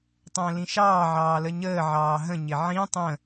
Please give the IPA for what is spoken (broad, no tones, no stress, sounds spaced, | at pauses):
tˤ ə̃ː l ĩ ʃ ɑː ʕ ɑː l ə ɲ əː ʕ ɑː ɦ ə̃ ɲ ɪ ʕ ĩ tˤ ə̃